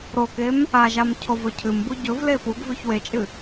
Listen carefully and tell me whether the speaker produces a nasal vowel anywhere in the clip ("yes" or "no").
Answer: no